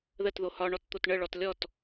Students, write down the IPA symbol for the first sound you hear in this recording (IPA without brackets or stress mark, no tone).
ð